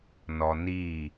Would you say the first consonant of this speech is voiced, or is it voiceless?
voiced